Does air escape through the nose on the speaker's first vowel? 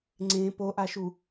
yes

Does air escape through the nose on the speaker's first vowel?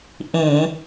yes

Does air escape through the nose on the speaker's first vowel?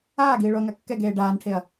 no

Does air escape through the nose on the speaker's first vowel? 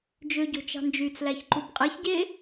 no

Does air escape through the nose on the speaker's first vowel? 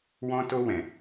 yes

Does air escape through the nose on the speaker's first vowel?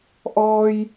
no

